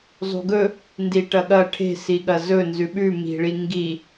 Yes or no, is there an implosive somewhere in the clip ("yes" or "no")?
yes